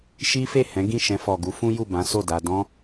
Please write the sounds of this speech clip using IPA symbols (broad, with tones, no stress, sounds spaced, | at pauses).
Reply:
ʃ i˦ f e˦˨ h ɛ̃˨˦ ɡ ĩ˦˨ ʃ ɛ̃˧ f ɔ˨ ɡ u˨˦ f ũ˦ j u˦˨ b ã˨˦ s o˦˨ d a˧ d ɔ̃˦